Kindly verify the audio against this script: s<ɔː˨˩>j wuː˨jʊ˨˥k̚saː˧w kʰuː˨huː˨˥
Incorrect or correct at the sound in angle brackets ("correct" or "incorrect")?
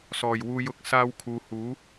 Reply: correct